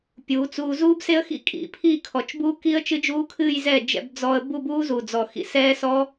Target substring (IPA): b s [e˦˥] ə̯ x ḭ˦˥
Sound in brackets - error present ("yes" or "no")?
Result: no